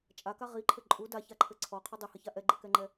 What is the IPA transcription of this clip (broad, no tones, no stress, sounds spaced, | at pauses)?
t͡ʃʼ a k a ʁ i ǃʰ ɘ ǃʼ u d a ç a ǃʰ ɘ ǀʰ ɔ qʰ ʏ dˤ ɘ h ə ç a ʔ ɛ ɡ͡ǃ ɘ k ɛ ŋ͡ǃ ɛ